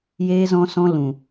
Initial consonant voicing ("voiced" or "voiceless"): voiced